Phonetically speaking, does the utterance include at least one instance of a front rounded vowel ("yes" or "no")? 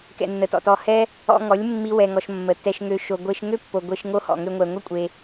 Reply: yes